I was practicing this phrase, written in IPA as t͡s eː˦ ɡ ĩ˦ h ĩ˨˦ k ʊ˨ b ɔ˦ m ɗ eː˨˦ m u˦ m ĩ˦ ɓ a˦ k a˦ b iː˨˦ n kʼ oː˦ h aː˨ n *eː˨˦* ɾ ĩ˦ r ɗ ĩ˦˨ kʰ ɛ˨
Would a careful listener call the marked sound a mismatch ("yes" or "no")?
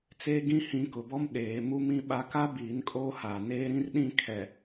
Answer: yes